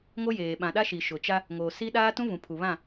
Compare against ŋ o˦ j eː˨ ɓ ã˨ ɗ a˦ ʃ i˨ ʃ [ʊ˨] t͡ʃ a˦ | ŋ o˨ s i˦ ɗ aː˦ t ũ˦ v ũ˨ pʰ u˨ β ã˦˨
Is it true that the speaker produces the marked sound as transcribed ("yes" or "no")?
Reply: yes